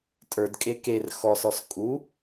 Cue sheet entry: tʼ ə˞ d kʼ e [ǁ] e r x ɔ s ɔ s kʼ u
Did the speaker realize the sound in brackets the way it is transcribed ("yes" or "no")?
no